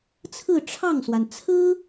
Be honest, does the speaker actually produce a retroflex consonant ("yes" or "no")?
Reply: yes